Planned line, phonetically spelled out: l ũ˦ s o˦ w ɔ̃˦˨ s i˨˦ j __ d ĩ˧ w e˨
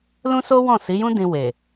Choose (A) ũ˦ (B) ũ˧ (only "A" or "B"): A